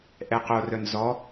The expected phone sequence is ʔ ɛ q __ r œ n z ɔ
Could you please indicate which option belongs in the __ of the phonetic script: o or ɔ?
o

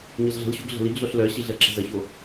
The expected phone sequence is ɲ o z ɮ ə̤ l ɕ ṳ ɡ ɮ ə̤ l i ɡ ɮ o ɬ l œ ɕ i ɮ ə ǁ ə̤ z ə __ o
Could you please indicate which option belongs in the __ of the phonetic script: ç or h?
ç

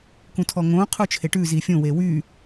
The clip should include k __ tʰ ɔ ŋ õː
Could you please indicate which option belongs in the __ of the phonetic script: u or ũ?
ũ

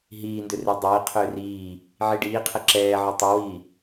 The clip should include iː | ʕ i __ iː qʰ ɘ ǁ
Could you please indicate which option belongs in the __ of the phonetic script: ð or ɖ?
ɖ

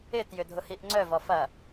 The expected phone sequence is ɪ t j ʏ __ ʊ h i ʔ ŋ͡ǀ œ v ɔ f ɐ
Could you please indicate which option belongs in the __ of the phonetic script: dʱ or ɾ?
dʱ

